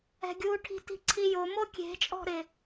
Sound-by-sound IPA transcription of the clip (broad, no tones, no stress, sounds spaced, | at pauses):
ɛ̤ ɡʲ u ʈʰ i̤ t i̤ ǀʰ i j o m o kʲ e̤ t͡ʃʼ ɔ̤ ɾ ɪ